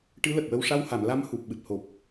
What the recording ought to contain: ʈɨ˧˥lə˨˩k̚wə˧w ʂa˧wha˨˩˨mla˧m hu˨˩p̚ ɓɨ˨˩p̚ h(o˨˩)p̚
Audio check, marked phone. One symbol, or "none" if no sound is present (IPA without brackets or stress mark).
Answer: o˨˩